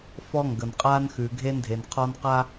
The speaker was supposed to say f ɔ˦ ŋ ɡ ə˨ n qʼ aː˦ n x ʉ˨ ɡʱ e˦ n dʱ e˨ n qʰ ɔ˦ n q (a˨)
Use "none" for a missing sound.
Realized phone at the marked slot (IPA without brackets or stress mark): a˦